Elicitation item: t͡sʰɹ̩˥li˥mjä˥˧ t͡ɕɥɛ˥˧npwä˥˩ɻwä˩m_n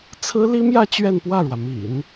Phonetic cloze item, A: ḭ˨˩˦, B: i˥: A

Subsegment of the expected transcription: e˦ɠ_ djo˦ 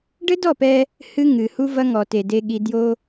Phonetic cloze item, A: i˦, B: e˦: A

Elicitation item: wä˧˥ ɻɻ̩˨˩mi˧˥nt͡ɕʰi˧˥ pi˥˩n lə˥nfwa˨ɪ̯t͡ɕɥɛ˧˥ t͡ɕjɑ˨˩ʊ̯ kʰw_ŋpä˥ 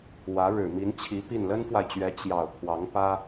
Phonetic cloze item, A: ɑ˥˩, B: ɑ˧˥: B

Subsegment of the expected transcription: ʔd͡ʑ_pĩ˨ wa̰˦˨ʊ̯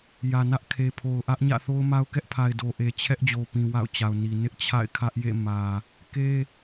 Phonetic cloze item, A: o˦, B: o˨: B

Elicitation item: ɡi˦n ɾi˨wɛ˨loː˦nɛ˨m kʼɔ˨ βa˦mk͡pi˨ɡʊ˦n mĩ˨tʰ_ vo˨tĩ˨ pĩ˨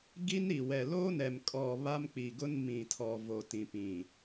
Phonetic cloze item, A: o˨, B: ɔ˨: B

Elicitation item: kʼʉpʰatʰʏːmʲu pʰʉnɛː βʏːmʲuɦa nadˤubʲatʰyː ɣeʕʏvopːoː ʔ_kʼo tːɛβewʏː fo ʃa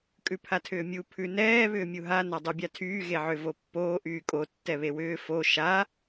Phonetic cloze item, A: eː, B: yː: B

